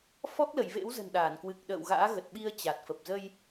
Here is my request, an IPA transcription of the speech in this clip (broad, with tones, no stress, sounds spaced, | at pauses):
f ɔ˦˥ k̚ l ə˧˩ j v ḛ˧˥ w z ə̤˨˩ n ɗ aː˧˩ n k w ɨ˨˩ k̚ ɗ ə̰ː˧˨ w ɣ a̰ː˧˥ ɣ ə˨˩ t̚ ɓ i˧ ə̯ t͡ɕ a˨˩ t̚ f ə˨˩ p̚ z ə˧ j